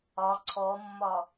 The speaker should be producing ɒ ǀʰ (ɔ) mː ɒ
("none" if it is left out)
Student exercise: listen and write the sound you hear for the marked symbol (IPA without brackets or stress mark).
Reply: ɔ